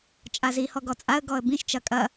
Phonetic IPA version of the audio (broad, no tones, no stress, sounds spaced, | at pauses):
t͡ʃʼ a z i h ɔ ɡ ɔ t͡sʼ a ə̯ ɡ ɔ ə̯ b ĩ ʃ t͡ʃ ɐ kʼ ɐ